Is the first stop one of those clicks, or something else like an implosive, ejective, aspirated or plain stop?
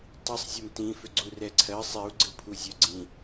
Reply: plain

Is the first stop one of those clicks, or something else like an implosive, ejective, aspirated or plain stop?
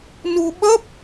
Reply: implosive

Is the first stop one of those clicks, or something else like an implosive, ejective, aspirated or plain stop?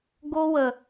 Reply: plain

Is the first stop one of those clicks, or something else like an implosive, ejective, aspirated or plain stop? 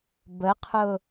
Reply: plain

